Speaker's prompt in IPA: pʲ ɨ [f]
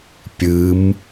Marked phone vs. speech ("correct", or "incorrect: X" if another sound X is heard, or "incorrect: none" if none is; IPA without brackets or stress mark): incorrect: m